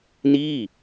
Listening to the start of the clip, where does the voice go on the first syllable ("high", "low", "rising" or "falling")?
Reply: falling